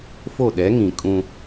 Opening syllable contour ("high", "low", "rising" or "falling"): falling